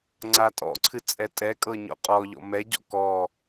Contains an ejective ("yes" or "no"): yes